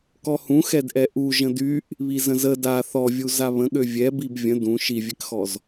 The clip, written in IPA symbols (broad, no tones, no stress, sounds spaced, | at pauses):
k ɔ h ũ x ɛ d ʔ ɛ ʔ u ʒ ə̃ d y ʔ | β i z ə̃ z ə d a θ ɔ vʲ u z a β ə̃ ɠ ø vʲ ɛ b i b vʲ ə̃ d ũ ʃ i vʲ ɛ k x ɔ z